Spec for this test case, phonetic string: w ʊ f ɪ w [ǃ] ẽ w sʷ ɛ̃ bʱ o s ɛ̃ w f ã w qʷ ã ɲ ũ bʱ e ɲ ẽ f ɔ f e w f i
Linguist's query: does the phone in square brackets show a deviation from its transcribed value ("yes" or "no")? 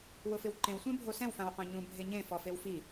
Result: no